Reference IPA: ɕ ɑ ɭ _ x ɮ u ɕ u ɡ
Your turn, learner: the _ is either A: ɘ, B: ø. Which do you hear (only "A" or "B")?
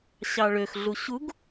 B